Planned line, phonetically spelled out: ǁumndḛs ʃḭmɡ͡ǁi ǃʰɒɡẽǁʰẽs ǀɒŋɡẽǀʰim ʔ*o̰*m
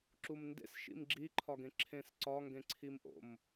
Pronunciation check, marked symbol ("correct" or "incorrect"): correct